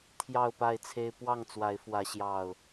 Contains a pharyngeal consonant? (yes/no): no